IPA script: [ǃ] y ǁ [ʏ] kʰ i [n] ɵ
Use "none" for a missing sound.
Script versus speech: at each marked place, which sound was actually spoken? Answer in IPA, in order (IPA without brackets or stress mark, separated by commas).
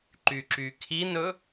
ǃ, y, n